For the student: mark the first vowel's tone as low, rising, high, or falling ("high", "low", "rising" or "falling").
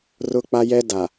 high